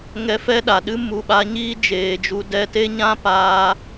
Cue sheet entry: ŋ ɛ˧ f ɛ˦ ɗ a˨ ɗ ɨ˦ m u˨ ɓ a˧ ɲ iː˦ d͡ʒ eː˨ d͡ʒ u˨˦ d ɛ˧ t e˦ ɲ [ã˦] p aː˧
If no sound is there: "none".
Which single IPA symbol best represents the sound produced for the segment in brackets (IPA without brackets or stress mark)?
ã˦